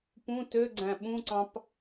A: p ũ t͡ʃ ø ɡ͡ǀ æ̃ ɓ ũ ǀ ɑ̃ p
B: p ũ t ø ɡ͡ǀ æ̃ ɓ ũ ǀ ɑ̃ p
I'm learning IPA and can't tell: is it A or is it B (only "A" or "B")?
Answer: B